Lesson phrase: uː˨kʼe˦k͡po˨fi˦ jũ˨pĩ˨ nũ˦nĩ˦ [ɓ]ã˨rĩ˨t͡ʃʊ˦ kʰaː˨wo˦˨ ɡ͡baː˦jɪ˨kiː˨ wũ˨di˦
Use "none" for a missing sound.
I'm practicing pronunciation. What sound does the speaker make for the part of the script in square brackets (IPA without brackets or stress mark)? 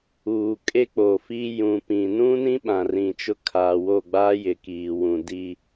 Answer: ɓ